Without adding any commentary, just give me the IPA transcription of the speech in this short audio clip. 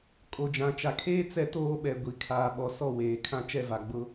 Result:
kʼ o˨ d͡ʒ ã˨ t͡ʃ a˨ kʰ eː˦ t͡s ɛ˦ t oː˦ ɓ ɛ˨ ɡʷ i˨ kʰ aː˨ ɓ ɔ˨ s ɔ˦˨ w eː˨ kʰ ã˦ t͡ʃ ɛ˦˨ v a˨ ɡ͡b ʊ˦

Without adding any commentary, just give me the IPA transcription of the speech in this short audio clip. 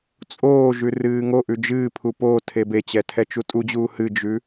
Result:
t͡sʼ oː ʒ ʉ r ɨː ŋ o ʔ ʉ d͡ʒ ɨː pʰ u p oː tʰ e b e t͡ɕ ɛ tʰ ɛ t͡ʃ u tʼ u d͡ʑ uː h ɨ d͡ʒ ʉ

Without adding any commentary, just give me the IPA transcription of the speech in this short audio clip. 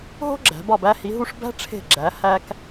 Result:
ɦ o̤˥ ɡ͡ǁ æ̤˩˧ b ɒ˧˩ b æ˧ h i˩˧ ɦ u˧ ʂ b æ̤˥ ʈ͡ʂʰ e̤˧˩ ɡ͡ǁ æ˩˧ h æ˧ k

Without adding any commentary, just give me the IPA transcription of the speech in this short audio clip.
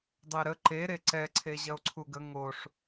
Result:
dˤ e ɾ ə ǃ e ɾ e ǀ ɛ ǀʰ e ʑ ɐ o̯ ǀʰ u ɡ ə ŋ o ʂ

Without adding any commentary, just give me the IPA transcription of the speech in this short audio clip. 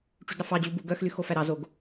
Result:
ʈ͡ʂ y d ɾ ɑ f ɑ d͡ʑ u b u ɡ œ x l y x o f æ ɾ ɑ z o ɡ

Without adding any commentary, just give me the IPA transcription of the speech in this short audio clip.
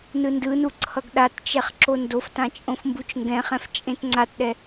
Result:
n ɯ n d ɯ n u ǀʰ ʌ ɡ ɗ a t t͡ʃ ɛ χ ǁ o n d o f t ã t͡ʃʼ õ f m b u t͡ʃ ŋ ɡ ɛ̃ χ ɛ̃ f t͡ʃʼ ẽ t ŋ͡ǀ a t ɗ ɛ

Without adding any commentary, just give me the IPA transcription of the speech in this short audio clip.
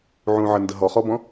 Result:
ʕ ũ ʕ ə n d ə ɦ ɔ χ ɔ b ɔ̃

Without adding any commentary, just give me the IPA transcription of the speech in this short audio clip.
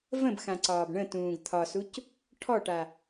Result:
v ə̃ b x ã ǀ ɒː b ɳ ə̃ t ũː ɡ t̪ʰ ɒ s u c | ʈʰ ɔ ʈ a

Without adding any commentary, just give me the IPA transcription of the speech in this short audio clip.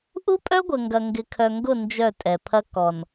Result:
ʔ u˦ pʼ œ˦ ɡʷ ə˨ ŋ ɡ ɐ˨ ŋ ɡ ɪ˨ kʰ œ˨ ŋ ɡ ʊ˦˨ n d͡ʒ œ˦˨ tʼ ɛ˨ pʰ ɐ˦ k ɔ˨ n

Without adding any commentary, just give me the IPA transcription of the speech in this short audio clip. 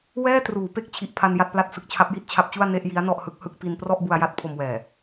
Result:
w ɛː˥˩ t r uː˩˦ p e˦˥ k̚ t͡ɕʰ i˨˩ ʔ pʰ a˧ n j a˥˩ t̚ p l a˥˩ t̚ s ɯ˦˥ k̚ t͡ɕʰ a˦˥ p̚ j i˦˥ t̚ t͡ɕʰ a˦˥ p̚ t͡ɕ u˥˩ a̯ n e˥˩ ʔ j i˦˥ a̯ n ɔ˥˩ ʔ h ɯ˦˥ k̚ h ɯ˥˩ k̚ p i˧ n p r ɔ˥˩ ʔ b u˧ a̯ j a˥˩ t̚ pʰ o˧ m w ɛː˨˩

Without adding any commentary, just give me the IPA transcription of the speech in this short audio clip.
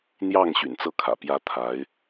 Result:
n̪ j ɑ˥˩ ŋ ɕ y̰˨˩ n t͡s ɤ˥˩ kʰ ä̰˨˩ p j ä˥ t̪ʰ a˧˥ ɪ̯

